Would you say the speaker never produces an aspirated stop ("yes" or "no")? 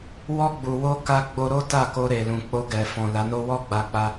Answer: yes